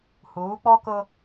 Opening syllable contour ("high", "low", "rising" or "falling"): rising